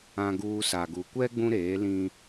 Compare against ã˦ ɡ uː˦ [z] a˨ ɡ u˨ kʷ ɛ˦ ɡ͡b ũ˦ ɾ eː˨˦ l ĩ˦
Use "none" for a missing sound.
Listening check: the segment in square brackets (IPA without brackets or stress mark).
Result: s